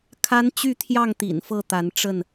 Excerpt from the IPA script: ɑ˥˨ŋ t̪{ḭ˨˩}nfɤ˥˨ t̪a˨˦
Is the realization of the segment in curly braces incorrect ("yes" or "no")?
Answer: no